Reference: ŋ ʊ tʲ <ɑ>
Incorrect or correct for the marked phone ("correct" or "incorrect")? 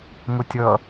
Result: incorrect